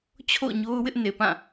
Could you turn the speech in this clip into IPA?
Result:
t͡ɕʰ o̰˦˨ ʊ̯ ɲ o˦ ʊ̯ w ɪ˦ ʔ n e˨ p ã˦˨

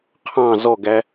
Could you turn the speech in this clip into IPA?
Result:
qʰ ɑ̃ z ɔ ɡ æ

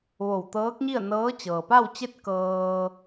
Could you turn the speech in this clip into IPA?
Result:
ʋ o˧˩ w t̪ ɤː˧˥ k̚ ɲ i˥˨ ə̯ n ɤː˧˥ t͡ɕ ɤː˩ p a˥˨ w t͡ɕ e˥˨ t̚ k ɤː˧

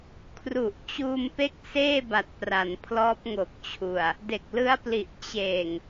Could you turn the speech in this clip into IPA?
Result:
kʰ r u˨˩ ʔ t͡ɕ uː˧ m p e˦˥ k̚ s eː˥˩ b a˨˩ t̚ p r a˩˦ n pʰ l ɔː˦˥ p̚ ŋ o˨˩ k̚ t͡ɕʰ u˨˩ a̯ | d e˨˩ k̚ l ɯ˦˥ a̯ p l i˨˩ ʔ t͡ɕ eː˨˩ ŋ

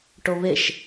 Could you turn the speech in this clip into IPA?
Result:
ʈ o β e ʃ

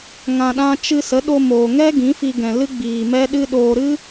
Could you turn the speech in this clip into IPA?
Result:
ŋ ã˧ ɗ ã˦ t͡ʃ ɨ˧ s ə˨˦ ɗ o˧ m oː˨ ŋ ɛ˦ ɡ ĩ˨˦ f i˧ ɡ ɛ̃˨ l ɨ˦ ɡ͡b iː˨ m ɛ˦ ɗ ɨ˦ ɗ oː˧ ɾ ɨ˦

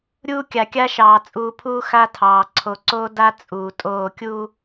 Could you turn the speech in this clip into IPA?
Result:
ɾʲ uː˦ kʲ a˨ kʲ a˦ ʃ ɑː˨ t͡sʼ uː˨ pʰ uː˦ x a˦ tʰ ɑː˨ ǀʰ o˨ ǀ oː˦ d a˦ t͡sʼ uː˨ tʼ oː˦˨ kʲ uː˦

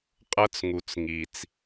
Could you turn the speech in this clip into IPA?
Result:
qʼ ɤ˦ t͡s ŋ u˨ t͡s ŋ i˨ t͡s

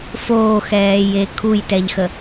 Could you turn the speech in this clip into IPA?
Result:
f oː x ɛː j e kʰ u j t ɛ ʎ x ə

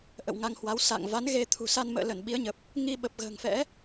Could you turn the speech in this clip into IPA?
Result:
ʔ ə̰˧˨ w ŋ a˧ ŋ h w a˨˦ w s a̰˧˨ ŋ v a˨˦ n ɣ e˧ t̪ʰ ṳ˨˩ s a˧ n m ə̰ː˧˨ l ə˧˩ n ɓ i˨˦ ə̯ ɲ ə˨˩ p̚ | ŋ i˧ ɓ ə˨˩ p̚ ɣ ə̤ː˨˩ ŋ f ɛ̰˧˥

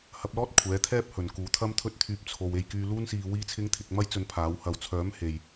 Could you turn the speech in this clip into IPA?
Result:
h ɐ˧ p̚ l ɔː˥ t̚ kʷʰ ɛː˨˥ t̪ʰ ɛː˥ p̚ h ɵ˨ n k uː˨˧ t̪ʰ ɐ˥ m t̪ʰ ɵ˥ t̚ t̪ʰ yː˧ p̚ t͡sʰ o˧ w e˧ j k yː˧ l uː˥ n s iː˧ w iː˥ t͡sʰ ɪ˥ ŋ t̪ʰ ɪ˨˥ k̚ m ɐ˥ j t͡s ɵ˧ n pʰ aː˨˥ w h ɐ˨ w t͡sʰ œː˨˥ m h e˨ j

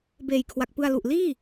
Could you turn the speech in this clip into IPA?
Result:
b eː˨˩ j kʰ w a˨˩ k̚ p ɯ˧ a̯ l u˨˩ ʔ l iː˥˩

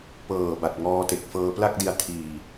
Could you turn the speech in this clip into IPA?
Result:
p ɤː˨˩ b a˨˩ t̚ ŋ ɔː˧ t e˨˩ k̚ f ɤː˧ p l a˥˩ k̚ d i˧ a̯ tʰ iː˧

